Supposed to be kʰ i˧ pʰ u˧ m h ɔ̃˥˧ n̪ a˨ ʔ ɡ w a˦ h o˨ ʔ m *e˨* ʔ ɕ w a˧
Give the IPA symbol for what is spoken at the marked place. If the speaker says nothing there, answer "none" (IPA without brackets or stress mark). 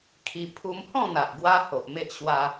e˦